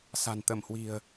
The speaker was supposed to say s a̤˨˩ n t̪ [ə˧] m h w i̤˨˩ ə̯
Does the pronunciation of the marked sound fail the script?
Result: yes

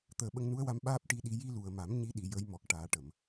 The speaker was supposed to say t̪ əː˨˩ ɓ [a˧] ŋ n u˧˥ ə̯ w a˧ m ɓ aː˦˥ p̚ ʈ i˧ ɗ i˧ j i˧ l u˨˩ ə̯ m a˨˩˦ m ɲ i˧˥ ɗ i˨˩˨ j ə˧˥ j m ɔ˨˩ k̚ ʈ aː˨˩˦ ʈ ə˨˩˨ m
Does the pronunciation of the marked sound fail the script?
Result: yes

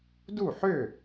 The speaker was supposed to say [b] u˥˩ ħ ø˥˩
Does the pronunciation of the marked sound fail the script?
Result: yes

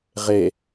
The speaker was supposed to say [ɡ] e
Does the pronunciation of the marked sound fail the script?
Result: yes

